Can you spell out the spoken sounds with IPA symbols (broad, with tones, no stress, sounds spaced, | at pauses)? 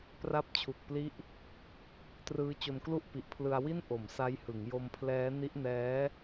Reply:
p r a˦˥ p̚ t͡ɕʰ u˨˩ k̚ p l i˦˥ ʔ | t r ɯː˦˥ t͡ɕ o˧ n k l u˥˩ ʔ p i˨˩ ʔ pʰ l ɯ˧ a̯ w i˥˩ n ʔ o˨˩ m s a˦˥ j h ɯ˩˦ ŋ j o˧ m pʰ l ɛː˦˥ n i˦˥ ʔ n ɛː˦˥